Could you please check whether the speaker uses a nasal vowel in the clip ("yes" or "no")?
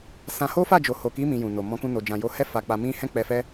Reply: yes